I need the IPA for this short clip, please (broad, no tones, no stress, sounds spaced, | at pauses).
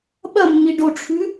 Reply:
ɓ ɐ mː i ɖ o ʈ͡ʂʰ ʉ